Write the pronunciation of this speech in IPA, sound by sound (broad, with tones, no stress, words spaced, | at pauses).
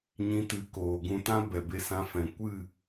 ɲĩ˧tɨ˨˦ koː˨ɡũ˧tã˦ bɛ˨be˧sã˧ fɛ̃˨ kʷɨ˦˨